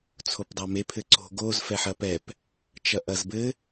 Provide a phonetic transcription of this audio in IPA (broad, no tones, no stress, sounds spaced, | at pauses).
t͡sʰ o p dˤ ɐ m e pʰ ɘ ǀ o̤ ɡ o z f ɛ ħ ɐ p ɛ p | t͡ʃ ɐ ʔ ɐ z b ɘ